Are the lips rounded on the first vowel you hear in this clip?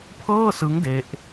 no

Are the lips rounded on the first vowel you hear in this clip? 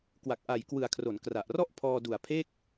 no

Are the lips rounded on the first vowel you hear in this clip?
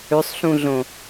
yes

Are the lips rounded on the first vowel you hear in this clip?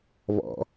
yes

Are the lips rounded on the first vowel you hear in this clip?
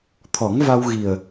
yes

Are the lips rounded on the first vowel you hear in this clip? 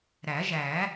no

